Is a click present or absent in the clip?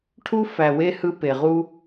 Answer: absent